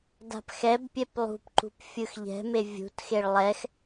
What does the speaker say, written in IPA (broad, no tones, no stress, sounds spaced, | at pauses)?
d a̤ p x ɛ b pʲ ɛ p lˠ ṳ p ǃ ṳ p fʲ ɯ x ʎ ɛ̤ m e vʲ ṳ t x e ɭ lˠ ɛ x